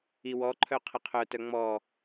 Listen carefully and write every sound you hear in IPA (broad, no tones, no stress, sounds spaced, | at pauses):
i w ɔ ǃʰ œ qʰ ə qʰ œ t œ ŋ͡m ɔ